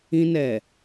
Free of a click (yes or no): yes